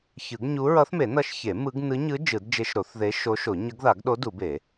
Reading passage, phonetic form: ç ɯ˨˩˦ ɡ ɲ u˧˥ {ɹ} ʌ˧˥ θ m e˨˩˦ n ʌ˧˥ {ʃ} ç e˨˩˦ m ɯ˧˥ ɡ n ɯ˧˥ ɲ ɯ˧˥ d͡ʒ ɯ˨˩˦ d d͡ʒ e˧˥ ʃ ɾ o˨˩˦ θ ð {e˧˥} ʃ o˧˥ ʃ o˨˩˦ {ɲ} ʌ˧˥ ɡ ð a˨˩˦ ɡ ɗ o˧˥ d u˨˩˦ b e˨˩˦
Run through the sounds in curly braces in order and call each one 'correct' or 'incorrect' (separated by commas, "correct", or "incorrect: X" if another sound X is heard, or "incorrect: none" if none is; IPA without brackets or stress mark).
correct, correct, correct, correct